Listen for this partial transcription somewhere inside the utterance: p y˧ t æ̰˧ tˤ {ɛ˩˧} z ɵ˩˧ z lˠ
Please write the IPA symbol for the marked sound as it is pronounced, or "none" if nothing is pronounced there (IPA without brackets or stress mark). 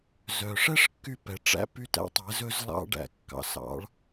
ɛ˩˧